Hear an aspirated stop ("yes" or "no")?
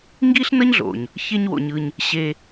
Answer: no